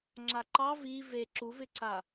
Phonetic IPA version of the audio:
ŋ͡ǁ a ǃ ɑ v i v e ǁ u v ɪ ǀ a

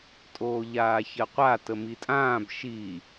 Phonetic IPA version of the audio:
tʼ oː ʎ aː ç ɜ qʷ a t ə m i tʼ ãː b ʃ i

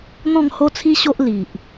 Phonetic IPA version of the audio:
n̪ ɔ̃˥˧ ŋ h o˥˧ t͡sʰ i˦ ɕ o˦ ʔ l i˨ ʔ

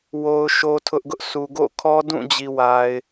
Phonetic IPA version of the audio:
w o˦ ʊ̯ ʃ o˦ tʰ ʊ˦ ʔ ɡ ʊ˦ ʔ sʰ u˨ ɡ o̰˦˨ kʰ ɔ˦ d ũ˦˨ d͡ʑ i˨ w a˨ ɪ̯

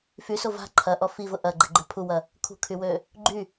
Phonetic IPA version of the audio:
f y s o v a̤ ǃʰ ɐ ʔ ɔ f i v ʊ ʔ ɐ ɡ͡ǃ ɛ ɡ͡ǃ ø pʰ u w ɐ | kʰ ṳ kʰ y w ø | ɡ͡ǃ y

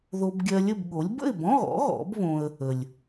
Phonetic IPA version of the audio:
ð o˧ b ɡʲ ɜ˧ lʲ ə˥˨ b ɠ o˩˥ lʲ b ə̰˥˨ ɪ̯ b ɔ̃˧˥˧ ɣ ɔ̰˩˥ ɣ ɔ̰˩˥ b β õ˧ ə̯ | ə˩ lʲ

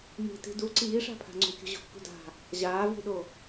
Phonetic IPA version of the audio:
m i̤ t i̤ d u ǀ iː ʂ a̤ pʰ a̤ ŋ͡ǀ ṳ kʲ ṳ ʑ o̤ kː ṳ d a̤ | ʑ aː v i̤ ɗ o

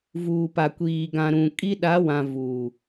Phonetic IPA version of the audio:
v uː˨ p a˨ kʷ iː˨ ɡ ã˨ ɾ ũ˨ kʼ i˦ ɗ a˨˦ w ã˨ v uː˨

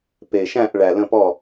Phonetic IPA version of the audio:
p e˨˩ ʃ æ̃˥˨ ʔ ɭ æ˨˩ l ə̃˥˨ p ɔ˥˨

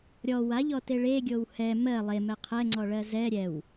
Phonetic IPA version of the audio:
ɾʲ ɔ w a ʎ ɔ t e ɭ e ɡʲ o w h ɛ m ɜ lˠ e m ɛ qʰ ɛ ŋ͡ǀ ɔ ɭ ɜ z ɛ ɾʲ ɛ w

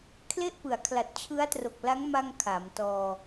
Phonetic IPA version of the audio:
kʰ l e˥˩ ʔ p ɯ˩˦ a̯ kʰ l a˨˩ t̚ t͡ɕʰ ɯ˦˥ a̯ t r o˨˩ k̚ l a˦˥ ŋ m a˧ ŋ kʰ a˩˦ m t ɔː˧

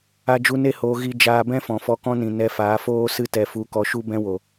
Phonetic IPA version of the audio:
a˦ d͡ʒ u˦ n e˦ h oː˧ ɣ i˧ d͡ʒ aː˧ b ɛ̃˦ f ɔ̃˨ f ɔ˧ k ɔ̃˦ n ĩ˨ n ɛ˧ f aː˨˦ f oː˦ s ɨ˧ t ɛ˨ f u˨ k ɔ˧ ʃ u˦ b ɛ̃˧ w o˨

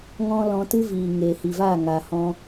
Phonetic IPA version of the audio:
ŋ ɔ̃˦ l ɔ̃˧ t ɨ˦ v iː˨ ŋ eː˨ h i˨ v aː˦˨ ŋ aː˨ h ɔ̃˧

